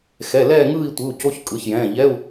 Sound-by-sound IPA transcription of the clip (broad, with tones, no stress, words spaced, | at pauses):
xɛ˩˧˩lɛː˥˧ŋɯː˥˧i̯ tʷɯ˩˧˩u̯co˧˥˧çkʼɯ˩˧˩çjɛ̃ː˩˧˩ ʎɛ˧˥˧u̯